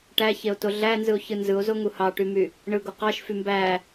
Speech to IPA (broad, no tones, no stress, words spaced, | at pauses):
ʈæçeo̯to ɮænzɯo̯çɯ nzɯo̯zoŋu hɑʈymy | ɳɯɡo qɑʃfy mbæ